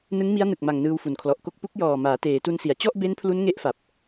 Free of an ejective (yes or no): yes